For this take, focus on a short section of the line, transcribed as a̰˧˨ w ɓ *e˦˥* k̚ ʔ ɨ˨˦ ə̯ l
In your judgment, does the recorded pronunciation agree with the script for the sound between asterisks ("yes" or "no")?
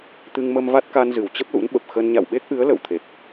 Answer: yes